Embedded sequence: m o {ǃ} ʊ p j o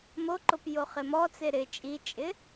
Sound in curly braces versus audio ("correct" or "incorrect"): correct